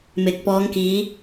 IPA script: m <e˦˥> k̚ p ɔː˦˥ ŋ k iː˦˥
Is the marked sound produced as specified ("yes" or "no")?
no